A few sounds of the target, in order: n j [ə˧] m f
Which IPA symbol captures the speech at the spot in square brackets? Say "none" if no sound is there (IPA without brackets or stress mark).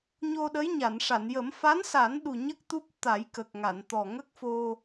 ə˨˩˦